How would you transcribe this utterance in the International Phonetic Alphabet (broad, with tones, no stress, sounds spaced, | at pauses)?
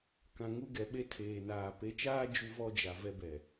k ã˨ ŋ u˦ ɡ ɛ˨ ɓ e˦ tʰ eː˨ n aː˨ p e˨˦ t͡ʃ aː˦ d͡ʒ u˦ v ɔ˦ d͡ʒ a˨ v ɛ˦ b ɛ˨